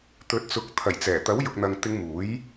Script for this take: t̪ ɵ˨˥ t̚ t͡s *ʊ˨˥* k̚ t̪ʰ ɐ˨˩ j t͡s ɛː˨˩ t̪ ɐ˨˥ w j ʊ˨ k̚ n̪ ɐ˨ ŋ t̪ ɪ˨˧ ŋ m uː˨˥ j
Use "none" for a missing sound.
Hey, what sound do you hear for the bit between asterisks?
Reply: ʊ˨˥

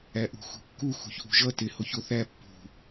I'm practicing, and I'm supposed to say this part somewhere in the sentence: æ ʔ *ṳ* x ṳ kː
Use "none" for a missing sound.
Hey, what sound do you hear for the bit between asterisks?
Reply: ṳ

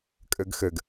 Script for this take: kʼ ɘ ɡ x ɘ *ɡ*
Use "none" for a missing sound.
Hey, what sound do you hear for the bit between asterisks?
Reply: ɡ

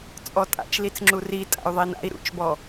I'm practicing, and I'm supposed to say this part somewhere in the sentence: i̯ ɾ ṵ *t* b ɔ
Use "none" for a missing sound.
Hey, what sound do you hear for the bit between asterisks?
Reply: t͡ʃ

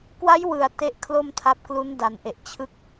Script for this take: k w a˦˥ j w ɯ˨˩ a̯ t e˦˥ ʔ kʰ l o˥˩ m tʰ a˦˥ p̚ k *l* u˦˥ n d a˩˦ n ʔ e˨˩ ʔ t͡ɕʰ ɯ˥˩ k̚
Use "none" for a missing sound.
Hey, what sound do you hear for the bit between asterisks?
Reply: l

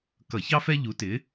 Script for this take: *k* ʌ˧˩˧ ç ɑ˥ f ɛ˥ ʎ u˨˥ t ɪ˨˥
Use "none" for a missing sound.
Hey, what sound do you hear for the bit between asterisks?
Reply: k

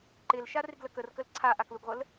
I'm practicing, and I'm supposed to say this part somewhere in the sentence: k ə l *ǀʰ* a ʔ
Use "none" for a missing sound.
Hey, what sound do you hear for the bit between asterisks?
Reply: ǀʰ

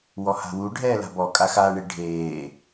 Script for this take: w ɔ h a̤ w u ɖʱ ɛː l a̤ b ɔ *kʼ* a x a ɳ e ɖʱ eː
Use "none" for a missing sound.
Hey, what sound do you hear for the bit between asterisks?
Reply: kʼ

